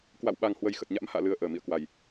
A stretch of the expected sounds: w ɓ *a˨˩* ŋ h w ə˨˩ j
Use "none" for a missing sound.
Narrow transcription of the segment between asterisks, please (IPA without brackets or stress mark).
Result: a˨˩